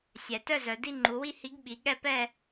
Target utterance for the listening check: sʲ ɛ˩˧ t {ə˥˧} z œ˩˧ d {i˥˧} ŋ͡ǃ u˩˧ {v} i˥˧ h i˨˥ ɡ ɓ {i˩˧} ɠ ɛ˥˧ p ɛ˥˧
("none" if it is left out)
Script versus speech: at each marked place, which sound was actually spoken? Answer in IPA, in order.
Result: œ˥˧, i˥˧, w, i˩˧

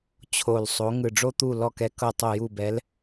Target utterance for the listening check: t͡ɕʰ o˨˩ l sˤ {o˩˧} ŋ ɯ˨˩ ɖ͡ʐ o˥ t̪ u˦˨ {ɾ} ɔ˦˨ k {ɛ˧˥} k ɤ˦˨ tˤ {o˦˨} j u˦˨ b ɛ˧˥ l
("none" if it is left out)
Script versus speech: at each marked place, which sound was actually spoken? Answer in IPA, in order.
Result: o˩˧, l, ɛ˧˥, o˦˨

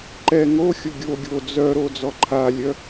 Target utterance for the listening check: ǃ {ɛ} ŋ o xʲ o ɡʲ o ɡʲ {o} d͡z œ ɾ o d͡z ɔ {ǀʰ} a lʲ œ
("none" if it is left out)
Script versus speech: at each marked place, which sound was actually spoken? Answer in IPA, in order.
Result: ɛ, o, ǃʰ

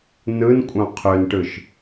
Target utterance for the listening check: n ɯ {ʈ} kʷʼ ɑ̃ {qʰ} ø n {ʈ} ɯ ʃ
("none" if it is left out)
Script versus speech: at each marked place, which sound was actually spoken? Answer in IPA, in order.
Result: n, qʰ, ʈ

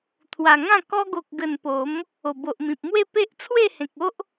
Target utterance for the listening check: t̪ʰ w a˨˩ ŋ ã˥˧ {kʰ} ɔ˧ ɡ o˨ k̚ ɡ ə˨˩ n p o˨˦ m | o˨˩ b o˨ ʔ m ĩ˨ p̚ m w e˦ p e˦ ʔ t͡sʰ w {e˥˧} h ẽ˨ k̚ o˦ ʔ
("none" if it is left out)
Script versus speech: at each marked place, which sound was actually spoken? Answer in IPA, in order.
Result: k, e˥˧

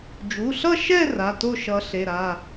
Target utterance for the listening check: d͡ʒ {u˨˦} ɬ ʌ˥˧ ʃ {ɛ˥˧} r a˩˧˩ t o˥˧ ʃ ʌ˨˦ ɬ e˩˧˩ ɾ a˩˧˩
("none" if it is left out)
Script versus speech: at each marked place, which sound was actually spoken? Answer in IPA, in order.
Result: u˩˧˩, ɛ˥˧

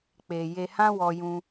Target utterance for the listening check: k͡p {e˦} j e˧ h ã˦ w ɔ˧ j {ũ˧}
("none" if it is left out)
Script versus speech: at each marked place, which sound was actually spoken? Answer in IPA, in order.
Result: e˨, ũ˧

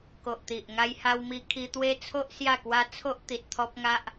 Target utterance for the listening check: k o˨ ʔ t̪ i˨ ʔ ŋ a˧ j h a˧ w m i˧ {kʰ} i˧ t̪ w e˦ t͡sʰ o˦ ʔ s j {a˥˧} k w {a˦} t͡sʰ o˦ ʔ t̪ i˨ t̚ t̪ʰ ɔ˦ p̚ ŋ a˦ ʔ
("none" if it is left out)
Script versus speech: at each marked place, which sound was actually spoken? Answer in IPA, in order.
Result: kʰ, a˥˧, a˦

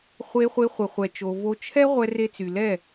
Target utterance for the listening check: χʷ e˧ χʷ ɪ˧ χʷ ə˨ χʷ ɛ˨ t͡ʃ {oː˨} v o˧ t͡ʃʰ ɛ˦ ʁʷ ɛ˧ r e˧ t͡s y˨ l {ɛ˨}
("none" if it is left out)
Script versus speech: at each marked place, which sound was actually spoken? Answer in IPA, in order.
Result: o˨, ɛ˦˨

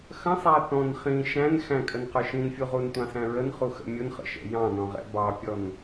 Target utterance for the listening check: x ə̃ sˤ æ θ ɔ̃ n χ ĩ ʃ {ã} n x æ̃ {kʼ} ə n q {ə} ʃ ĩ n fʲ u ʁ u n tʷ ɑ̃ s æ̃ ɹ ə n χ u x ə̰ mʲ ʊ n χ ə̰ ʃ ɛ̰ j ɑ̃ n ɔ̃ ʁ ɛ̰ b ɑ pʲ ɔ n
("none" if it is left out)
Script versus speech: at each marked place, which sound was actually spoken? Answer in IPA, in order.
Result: æ̃, kʼ, ə˞

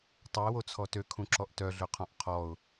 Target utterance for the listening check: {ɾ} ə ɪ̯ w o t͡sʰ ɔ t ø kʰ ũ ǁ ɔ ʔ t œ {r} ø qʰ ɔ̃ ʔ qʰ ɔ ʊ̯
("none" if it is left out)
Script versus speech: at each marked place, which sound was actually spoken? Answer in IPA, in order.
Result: tˤ, ɮ

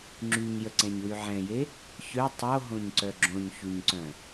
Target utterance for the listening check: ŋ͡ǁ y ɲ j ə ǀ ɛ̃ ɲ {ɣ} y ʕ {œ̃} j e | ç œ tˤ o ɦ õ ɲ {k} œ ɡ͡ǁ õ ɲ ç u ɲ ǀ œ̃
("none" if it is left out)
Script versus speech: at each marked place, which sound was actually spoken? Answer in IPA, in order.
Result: w, ɛ̃, ǀ

